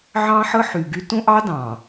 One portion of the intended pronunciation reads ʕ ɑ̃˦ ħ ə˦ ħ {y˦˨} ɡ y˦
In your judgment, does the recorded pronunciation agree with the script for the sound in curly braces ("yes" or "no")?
no